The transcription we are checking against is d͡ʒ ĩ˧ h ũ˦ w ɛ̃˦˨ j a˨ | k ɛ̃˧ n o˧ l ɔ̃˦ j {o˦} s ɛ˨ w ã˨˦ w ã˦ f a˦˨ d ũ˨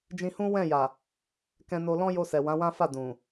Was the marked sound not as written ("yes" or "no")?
yes